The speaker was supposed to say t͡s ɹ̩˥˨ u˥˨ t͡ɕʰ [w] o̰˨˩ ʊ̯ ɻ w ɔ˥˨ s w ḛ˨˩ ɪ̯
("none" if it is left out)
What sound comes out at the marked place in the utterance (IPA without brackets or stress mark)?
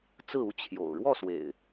j